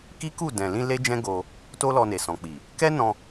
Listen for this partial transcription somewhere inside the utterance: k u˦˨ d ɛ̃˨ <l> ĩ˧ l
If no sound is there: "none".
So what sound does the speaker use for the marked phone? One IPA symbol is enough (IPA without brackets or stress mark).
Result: l